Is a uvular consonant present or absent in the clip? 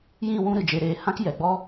absent